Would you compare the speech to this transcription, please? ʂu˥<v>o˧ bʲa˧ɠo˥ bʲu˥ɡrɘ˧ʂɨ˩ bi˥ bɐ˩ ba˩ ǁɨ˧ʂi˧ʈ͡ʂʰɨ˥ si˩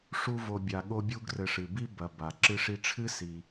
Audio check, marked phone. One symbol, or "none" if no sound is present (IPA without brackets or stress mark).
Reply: v